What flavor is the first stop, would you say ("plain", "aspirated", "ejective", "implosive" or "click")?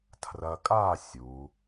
aspirated